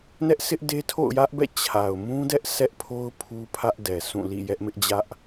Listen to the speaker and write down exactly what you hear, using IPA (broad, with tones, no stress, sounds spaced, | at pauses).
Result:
n ɛ˦ ʔ s ɪ˦ ʔ d e˦ tʰ o̰˦˨ ʊ̯ j ä˦ ʔ b ɛ̰˦˨ t͡ɕʰ a˨ ʊ̯ m ũ˦ d ɛ˦ ʔ s ɛ˦ ʔ pʰ o˦ ʊ̯ pʰ u˦ pʰ ä˦ ʔ d ɛ˨ s ũ˦˨ l ḭ˦˨ j ɛ˦ ʔ m ɪ˦ ʔ d͡ʑ ä˦ ʔ